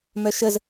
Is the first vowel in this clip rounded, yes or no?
yes